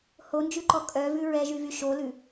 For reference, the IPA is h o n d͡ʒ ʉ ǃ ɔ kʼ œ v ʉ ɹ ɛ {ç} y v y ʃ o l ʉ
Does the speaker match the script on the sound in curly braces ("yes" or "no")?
no